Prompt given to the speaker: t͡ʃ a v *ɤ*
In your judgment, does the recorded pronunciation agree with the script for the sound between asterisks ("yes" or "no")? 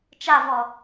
no